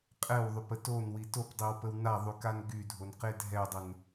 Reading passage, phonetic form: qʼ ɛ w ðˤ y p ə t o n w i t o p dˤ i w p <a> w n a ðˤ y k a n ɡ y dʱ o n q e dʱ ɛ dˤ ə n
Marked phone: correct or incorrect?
incorrect: ə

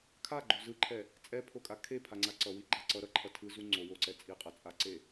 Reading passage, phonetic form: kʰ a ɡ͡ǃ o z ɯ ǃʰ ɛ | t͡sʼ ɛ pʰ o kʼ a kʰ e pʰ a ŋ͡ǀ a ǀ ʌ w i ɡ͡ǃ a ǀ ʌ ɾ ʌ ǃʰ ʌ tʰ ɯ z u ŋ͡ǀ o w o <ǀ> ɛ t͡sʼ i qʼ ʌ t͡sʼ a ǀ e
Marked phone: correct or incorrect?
correct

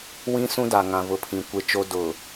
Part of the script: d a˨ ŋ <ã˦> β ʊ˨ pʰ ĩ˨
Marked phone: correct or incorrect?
incorrect: ã˨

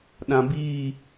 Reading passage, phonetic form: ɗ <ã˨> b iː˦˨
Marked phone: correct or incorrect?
correct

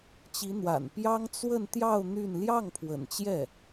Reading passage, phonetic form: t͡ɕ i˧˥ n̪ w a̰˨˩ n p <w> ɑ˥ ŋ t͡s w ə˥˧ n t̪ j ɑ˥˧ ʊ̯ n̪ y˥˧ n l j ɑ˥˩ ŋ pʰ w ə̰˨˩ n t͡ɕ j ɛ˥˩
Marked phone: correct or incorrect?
incorrect: j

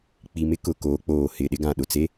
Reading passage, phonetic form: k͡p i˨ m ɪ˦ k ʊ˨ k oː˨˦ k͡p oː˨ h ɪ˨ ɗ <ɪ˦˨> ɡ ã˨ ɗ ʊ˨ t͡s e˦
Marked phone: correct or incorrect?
incorrect: ɪ˦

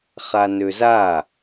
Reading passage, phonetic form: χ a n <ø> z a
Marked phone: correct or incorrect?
correct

